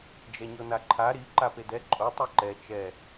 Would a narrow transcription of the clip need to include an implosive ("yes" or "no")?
no